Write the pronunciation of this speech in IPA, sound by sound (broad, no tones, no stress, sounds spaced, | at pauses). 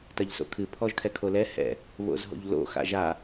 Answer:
t ɐ ʎ s o̰ kʰ ɨ pʰ ɔ ʒ kʰ ɛ kʰ o l ɛ h ɛ̰ | β o̰ z ɦ o̰ ʎ l o̰ x a̰ ʒ a